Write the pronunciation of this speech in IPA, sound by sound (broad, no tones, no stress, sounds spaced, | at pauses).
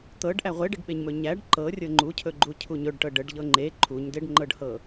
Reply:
t̪ ɤ ɖ ʔ æ ʁʷ e ɖ ɪ ɖ ɓ e ɲ m ɵ ɲ æ ɖ ǃ ɤ rʲ ɤ ŋ͡ǃ u cʰ ɵ ɡ͡ǃ u cʰ u ɲ ɵ ɖ ʈ ɤ ɖ ə ɖ ʎ ɤ ŋ͡ǃ e ǃʰ u ɲ d e ɖ ŋ͡ǃ ɤ ɖ h ɤ